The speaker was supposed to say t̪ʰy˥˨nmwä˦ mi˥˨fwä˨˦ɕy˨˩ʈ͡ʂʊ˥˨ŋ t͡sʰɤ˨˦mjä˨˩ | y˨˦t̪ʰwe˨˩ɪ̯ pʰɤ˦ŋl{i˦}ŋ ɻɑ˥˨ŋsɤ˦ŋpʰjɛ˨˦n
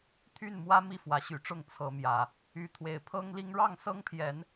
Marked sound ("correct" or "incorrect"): correct